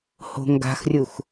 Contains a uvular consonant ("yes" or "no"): no